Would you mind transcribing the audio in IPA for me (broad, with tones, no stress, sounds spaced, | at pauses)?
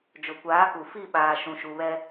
d͡ʒ ʊ˨ kʷ aː˨˦ k u˨ f i˦˨ ɓ aː˨ ʃ ũ˨ ʃ u˨ β ɛ˦